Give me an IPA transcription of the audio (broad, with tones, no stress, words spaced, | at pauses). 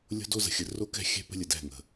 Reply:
lʲo̤˦do˦ zə̤˨xʲə˨ ro˦kɛ̤˦˨xʲɛ̤˦ pə̤˦lʲə˨dɛ̤˦˨ ŋə̤˨